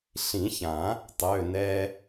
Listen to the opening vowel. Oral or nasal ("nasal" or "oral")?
nasal